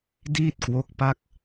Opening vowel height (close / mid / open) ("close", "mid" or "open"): close